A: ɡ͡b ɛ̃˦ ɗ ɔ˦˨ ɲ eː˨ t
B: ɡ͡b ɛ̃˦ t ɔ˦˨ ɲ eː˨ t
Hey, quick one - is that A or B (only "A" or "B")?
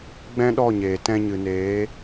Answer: A